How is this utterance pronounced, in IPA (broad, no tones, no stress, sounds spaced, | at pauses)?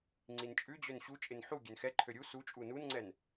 ŋ͡ǀ i n t͡ʃʼ ʉ d͡ʑ ø n ɕ u t͡ʃʼ ɪ n ħ u ɡʲ ø n x ɛ ǃʰ ø ɾʲ u s u t͡ʃʼ u n u n ŋ͡ǀ ɛ n